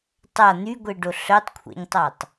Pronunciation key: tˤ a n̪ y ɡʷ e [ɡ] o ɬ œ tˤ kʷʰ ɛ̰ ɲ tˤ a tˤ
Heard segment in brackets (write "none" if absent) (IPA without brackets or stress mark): ɖ